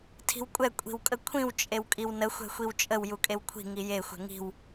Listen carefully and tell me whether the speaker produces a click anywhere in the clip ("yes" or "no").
no